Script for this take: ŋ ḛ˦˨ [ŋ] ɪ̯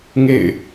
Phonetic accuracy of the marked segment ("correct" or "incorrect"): incorrect